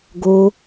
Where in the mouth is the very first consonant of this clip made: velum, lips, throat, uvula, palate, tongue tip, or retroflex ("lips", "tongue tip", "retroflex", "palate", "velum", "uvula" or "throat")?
velum